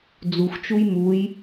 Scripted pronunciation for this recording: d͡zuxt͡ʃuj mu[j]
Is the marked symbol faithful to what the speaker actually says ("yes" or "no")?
yes